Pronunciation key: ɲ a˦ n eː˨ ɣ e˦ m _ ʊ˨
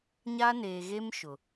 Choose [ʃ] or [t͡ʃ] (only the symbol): ʃ